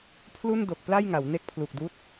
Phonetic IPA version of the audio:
pʰ l u˥˩ n d o˨˩ k̚ p l a˥˩ j ŋ a˩˦ w n e˦˥ k̚ pʰ l u˨˩ k̚ d uː˦˥ t̚

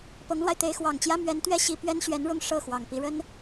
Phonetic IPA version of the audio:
p ɤ˧˥ ŋ l w a˧ ɪ̯ t̪ e˧˥ ɪ̯ x w ɑ˨˩ ŋ t͡ɕ j ä˥ m ɥ ɛ˧˥ n t̪ ɥ ɛ˥ ɕ i˧˥ p ɥ ɛ˥ n ɕ ɥ ɛ˧˥ n ɻ ʊ˥˧ ŋ ʂ ɤ˥˩ x w ɑ˨˩ ŋ p i˧˥ ɻ ə˥ n

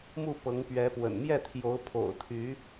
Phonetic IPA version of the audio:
m u˥˨ p ɤ˨˦ ŋ p ɥ ɛ˨˦ p w ə̰˨˩ n m j ɛ˥˨ t̪ʰ j o˨˦ ʊ̯ pʰ o̰˨˩ ʊ̯ t̪ʰ y˨˦

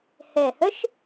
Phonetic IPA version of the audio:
h ɛ˨˩ h œ˦˥ ʃ

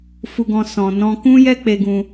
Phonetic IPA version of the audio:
f u˦ ɡ ɔ̃˦ s ɔ̃˧ n ɔ̃˦ k ũ˦ j ɛ˦ k͡p e˧ ɡ ũ˧

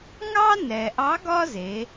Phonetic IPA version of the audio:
ŋ ɑ˥ n ɛ˩ ʔ ɑ˧˥ ɡ ɒ˥ z e˩˧

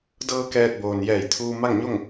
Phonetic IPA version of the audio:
d ɤː˧ k ɛː˧ t̚ b oː˩ n j ɛː˧˩ j t̪ʰ uː˧ m a˥˨ ŋ ɲ o˥˨ ŋ

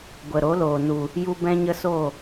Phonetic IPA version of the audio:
ɡʷ ə˨ ɾ o˨˦ l oː˨ n u˨ | j u˦ b ɛ̃˦ ɲ ə˦ s o˦˨

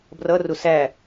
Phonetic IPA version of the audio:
b r ʌ r ʊ s æ

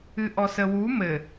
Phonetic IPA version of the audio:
ɨ ʔ ɔ s ə w u m ɘ

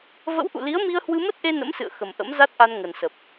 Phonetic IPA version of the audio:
v ə̰˧˥ w ʔ ṵ˧˨ l i˨˦ ə̯ m i˧ ə̯ h w ɨ˧ m ə˦˥ t̚ ʔ e˧ n ə̰˧˥ m s ɨ̰˧˨ ə̯ x ə˨˩ m ʔ ə̰˧˥ m z a˦˥ t̚ ʔ a˧ n ŋ ə˨˩ n s ə˨˩ p̚

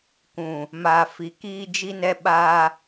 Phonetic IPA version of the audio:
k ũ˨ | m aː˨ f i˨ k iː˦ d͡ʒ i˦ n ɛ˦ ɓ aː˦

